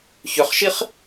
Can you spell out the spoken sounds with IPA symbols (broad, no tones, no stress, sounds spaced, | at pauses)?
ç ʏ χ ʃ i χ